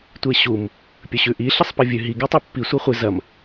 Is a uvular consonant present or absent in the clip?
present